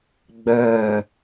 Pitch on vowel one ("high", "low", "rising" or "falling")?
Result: low